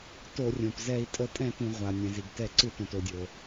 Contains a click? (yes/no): yes